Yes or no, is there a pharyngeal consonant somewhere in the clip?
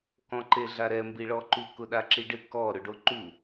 no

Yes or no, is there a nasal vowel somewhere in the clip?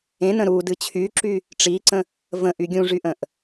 yes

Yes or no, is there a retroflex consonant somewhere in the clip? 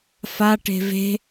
yes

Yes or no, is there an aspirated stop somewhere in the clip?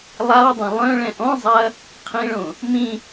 yes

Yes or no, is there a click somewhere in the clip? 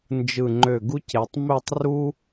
yes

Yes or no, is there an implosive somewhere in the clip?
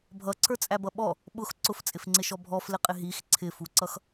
yes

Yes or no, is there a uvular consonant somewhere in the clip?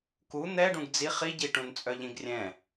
yes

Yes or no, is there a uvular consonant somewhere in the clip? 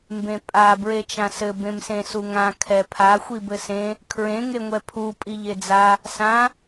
no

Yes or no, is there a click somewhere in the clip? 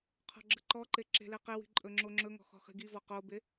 yes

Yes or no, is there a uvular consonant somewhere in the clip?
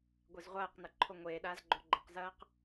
yes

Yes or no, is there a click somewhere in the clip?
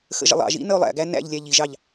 no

